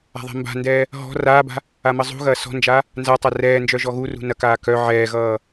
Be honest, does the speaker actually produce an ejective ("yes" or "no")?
no